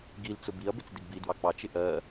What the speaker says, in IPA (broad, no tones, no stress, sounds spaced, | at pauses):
ɡ i l t͡s ʊ b i ɐ̯ b ɪ t͡s d ɪ ɡ b i d w ɑ k͡p ɑ t͡ʃ ɪ ʔ ɜ